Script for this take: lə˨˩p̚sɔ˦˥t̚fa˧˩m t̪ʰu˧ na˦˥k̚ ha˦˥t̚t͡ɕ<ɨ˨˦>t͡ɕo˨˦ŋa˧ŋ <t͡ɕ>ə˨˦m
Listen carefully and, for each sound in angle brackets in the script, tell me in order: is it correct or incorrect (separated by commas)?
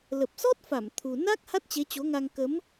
incorrect, incorrect